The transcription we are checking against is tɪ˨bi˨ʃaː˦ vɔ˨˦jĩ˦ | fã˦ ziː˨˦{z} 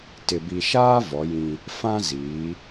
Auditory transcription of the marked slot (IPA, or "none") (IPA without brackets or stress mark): none